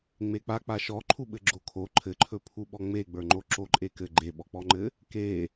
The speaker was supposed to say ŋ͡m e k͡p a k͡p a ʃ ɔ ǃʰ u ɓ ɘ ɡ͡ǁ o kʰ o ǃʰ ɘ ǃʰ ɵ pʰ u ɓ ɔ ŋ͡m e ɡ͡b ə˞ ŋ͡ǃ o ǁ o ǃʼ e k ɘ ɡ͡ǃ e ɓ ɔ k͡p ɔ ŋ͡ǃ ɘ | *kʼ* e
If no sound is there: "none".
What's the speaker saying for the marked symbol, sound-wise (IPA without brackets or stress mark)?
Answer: k